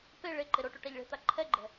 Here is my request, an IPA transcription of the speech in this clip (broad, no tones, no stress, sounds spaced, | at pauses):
p e ɭ e ǃ e ɾ o ʈ u ʈ a ʎ ɭ e̤ t̪ a ǃʰ ɛ ɡ͡ǃ ɛ̤